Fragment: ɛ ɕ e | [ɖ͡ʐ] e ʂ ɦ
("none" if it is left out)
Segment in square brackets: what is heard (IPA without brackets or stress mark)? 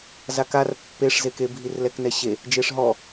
d͡ʒ